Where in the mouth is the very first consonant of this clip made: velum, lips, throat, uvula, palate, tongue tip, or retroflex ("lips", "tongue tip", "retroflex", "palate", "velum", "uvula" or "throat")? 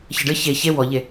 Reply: palate